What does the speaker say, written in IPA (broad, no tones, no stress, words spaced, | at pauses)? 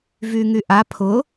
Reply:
vyŋyʔa pʰʊ